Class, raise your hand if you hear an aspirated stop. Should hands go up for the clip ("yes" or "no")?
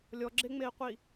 no